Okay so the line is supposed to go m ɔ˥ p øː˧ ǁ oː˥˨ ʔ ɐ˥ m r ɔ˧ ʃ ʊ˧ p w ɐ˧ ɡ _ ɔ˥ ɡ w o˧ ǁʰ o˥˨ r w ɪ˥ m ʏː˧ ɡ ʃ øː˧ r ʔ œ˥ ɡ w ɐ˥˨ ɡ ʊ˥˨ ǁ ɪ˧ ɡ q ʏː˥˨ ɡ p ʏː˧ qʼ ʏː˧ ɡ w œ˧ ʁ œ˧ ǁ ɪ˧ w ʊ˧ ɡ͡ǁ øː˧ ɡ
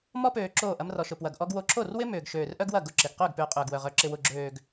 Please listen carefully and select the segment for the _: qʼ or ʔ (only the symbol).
ʔ